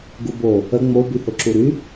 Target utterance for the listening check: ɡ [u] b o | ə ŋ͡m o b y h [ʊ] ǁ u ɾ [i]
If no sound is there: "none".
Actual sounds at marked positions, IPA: u, ʊ, y

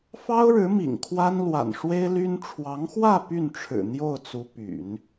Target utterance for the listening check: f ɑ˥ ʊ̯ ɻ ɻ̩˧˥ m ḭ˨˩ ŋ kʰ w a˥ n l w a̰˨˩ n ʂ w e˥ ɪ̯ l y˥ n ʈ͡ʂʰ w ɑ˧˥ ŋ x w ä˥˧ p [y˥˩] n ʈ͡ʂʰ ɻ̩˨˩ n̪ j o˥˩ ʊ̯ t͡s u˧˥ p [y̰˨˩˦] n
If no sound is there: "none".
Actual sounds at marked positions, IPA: y˥˩, y̰˨˩˦

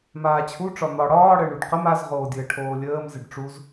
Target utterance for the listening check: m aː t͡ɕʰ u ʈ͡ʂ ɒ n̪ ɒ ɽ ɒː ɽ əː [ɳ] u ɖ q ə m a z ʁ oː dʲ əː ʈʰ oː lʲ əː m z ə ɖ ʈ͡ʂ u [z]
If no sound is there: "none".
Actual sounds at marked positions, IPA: ɳ, z

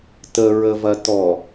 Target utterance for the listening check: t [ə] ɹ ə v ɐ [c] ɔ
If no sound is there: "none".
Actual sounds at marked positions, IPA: ə, t

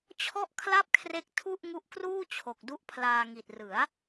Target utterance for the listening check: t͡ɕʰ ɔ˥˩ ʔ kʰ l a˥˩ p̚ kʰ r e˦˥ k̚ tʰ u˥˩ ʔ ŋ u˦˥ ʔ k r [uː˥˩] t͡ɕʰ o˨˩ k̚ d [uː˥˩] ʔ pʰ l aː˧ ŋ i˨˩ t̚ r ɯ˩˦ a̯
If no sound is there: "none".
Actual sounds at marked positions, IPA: uː˥˩, u˥˩

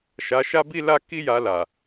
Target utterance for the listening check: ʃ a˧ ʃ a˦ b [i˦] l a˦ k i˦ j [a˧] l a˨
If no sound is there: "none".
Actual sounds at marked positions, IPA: i˦, a˧

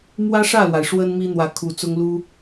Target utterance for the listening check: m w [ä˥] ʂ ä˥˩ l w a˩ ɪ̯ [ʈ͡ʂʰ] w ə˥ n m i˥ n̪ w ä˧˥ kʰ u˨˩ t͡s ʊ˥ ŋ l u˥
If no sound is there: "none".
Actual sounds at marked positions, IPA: ä˥, ʂ

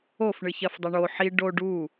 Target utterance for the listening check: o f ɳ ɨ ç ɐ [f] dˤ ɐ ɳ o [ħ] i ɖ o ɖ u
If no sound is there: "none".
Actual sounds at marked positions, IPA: f, ħ

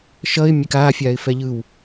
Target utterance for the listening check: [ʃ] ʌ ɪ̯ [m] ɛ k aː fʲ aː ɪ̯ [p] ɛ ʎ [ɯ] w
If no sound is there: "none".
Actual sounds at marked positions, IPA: ʃ, mʲ, f, ɯ

